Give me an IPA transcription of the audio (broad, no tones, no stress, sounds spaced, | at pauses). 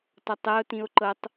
t ɔ tˤ ɛ o̯ t ĩ o̯ ǃ ɤ tˤ